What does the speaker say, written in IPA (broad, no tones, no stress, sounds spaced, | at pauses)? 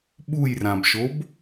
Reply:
ɓ u j r ã b ʃ o b